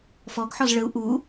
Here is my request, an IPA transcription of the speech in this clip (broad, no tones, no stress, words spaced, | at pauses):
fɔɡħɔz ɭəu̯ ʔu